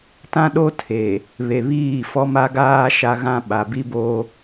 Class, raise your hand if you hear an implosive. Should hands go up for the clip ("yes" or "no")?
yes